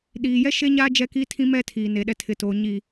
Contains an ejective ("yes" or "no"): no